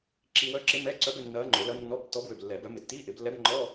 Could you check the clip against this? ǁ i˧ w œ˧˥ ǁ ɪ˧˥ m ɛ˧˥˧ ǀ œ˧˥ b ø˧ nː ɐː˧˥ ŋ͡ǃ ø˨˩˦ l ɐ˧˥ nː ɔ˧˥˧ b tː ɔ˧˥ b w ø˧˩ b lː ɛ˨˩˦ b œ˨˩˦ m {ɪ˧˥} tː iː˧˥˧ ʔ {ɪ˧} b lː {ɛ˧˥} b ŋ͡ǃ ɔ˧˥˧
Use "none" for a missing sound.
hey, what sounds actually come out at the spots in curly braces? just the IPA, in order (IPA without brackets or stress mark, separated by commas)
ɪ˨˩˦, ɪ˨˩˦, ɛ˧˥